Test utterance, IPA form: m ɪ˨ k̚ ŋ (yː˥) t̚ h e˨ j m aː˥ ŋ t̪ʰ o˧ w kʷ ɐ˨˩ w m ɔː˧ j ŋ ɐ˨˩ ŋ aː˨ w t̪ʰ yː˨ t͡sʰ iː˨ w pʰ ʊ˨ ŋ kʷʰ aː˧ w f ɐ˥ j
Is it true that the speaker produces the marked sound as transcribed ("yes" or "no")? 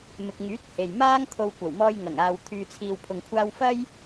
no